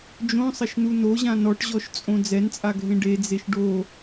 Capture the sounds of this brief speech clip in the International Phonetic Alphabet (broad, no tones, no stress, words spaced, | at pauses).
d͡ʒõsˤɐʃnu noʑã nɔʈʑɔʃt͡sʼõ d͡zɛnt͡sʼaɡʱẽ ɖed͡zeʃ ɖo